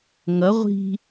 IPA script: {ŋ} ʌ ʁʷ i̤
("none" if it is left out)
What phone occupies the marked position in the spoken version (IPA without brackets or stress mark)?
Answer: ŋ